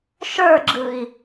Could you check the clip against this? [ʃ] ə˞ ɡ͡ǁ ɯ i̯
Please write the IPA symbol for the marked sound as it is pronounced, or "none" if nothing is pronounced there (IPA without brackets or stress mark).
ʃ